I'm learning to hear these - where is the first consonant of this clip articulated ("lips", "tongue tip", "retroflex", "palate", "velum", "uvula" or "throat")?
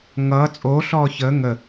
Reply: velum